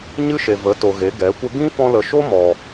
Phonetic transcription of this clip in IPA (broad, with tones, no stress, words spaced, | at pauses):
ɲɨ˦ʃe˨ və˨˦to˨ ɣe˨˦ɡɛ˨˦kʷə˦ ɡĩ˦fɔ̃˧lə˨ʃo˦ mɔ˨